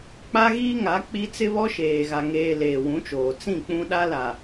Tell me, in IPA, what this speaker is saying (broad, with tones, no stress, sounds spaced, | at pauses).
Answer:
k͡p a˦ ɣ iː˦ ŋ a˨˦ k͡p i˦ t͡s ɪ˦ β ɔ˦ ʃ eː˨ ɣ a˨ ŋ eː˨ l eː˨ w ũ˨˦ t͡ʃ oː˨ t͡s ĩ˦˨ k͡p ũ˦ ɗ a˦ l a˨